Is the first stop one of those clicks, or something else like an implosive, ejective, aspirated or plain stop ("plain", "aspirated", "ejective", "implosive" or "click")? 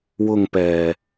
plain